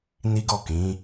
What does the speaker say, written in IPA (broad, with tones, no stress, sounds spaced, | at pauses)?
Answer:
n i˦ ɡ ɔ˦˨ k ĩ˨˦